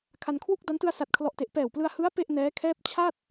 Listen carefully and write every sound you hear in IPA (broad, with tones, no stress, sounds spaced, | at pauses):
kʰ a˧ n kʰ w u˥˩ k̚ d a˦˥ n t ɯ˧ a̯ s a˨˩ t̚ kʰ l ɔ˨˩ ʔ t e˨˩ ʔ p ɛː˨˩ w p l ɯ˧ a̯ h ɯ˦˥ a̯ p e˥˩ ʔ n ɛː˦˥ kʰ ɛː˥˩ p̚ t͡ɕʰ a˥˩ t̚